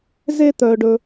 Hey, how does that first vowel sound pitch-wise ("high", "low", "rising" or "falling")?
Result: high